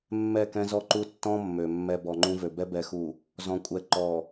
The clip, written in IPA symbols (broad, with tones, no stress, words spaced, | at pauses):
mːɛ˦˨kɛ̃˦zɔ˦ǃu˦ tːɔ̃˦ mːø˨mːɛ˦ bɔ˨ŋ͡ǃũ˦vø˨ bɛ˦bɛ˨xu˨ | zɔ̃˨ kʷʼɛ˨ ǃɔ˨